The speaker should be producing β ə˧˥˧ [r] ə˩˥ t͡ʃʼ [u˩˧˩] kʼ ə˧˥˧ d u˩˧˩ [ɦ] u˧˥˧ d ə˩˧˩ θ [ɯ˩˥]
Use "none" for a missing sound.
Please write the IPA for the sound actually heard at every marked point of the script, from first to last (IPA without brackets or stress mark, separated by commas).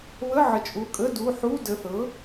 ʕ, u˩˧˩, ħ, ɤ˩˥